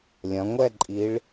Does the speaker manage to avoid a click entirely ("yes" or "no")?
no